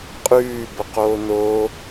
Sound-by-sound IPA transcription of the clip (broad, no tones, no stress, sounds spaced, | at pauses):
qʼ ʉː b ə q oː n o